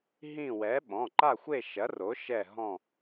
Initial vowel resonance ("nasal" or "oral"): nasal